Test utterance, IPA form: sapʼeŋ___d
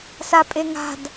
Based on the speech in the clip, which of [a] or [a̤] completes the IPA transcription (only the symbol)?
a̤